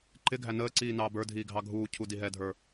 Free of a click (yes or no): no